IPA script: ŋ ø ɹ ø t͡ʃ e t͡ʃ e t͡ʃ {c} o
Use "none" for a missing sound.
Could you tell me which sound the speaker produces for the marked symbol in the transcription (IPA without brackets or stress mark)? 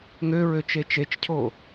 cʰ